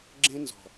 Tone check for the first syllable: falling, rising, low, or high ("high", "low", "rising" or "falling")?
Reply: high